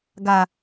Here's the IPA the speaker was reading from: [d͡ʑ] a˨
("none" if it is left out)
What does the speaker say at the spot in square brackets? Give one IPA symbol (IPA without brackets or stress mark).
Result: ɡ